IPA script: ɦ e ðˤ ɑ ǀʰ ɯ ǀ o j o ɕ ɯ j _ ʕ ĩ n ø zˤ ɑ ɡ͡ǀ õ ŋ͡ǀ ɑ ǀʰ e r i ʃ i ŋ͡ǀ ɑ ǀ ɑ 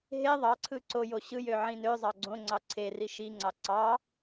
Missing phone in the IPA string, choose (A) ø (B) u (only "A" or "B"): A